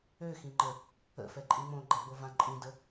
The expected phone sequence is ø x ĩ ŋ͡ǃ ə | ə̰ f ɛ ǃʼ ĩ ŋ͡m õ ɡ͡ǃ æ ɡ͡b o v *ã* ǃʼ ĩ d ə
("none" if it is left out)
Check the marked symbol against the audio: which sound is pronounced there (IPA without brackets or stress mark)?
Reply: ã